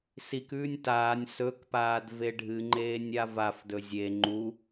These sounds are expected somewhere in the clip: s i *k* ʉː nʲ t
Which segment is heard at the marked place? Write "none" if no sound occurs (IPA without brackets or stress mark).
k